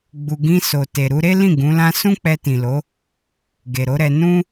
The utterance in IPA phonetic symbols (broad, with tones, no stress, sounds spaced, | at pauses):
ɡ͡b u˨ ɡ ĩ˧ s o˨ t e˨ ɾ u˧ ɾ e˦ l ĩ˦˨ ɡ ũ˨˦ l ã˦ s ũ˦ k͡p ɛ˧ t ĩ˨ l o˨˦ | ɡ e˨ ɾ o˨˦ ɾ ɛ˧ n ũ˦